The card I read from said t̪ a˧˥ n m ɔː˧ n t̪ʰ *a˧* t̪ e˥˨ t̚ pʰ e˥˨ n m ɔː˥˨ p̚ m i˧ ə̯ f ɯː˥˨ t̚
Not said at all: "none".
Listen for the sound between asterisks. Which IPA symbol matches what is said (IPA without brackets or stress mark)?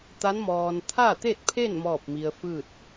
a˥˨